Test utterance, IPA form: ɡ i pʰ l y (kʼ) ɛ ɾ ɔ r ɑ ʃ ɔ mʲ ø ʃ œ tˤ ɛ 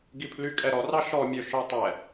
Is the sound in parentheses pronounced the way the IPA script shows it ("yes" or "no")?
yes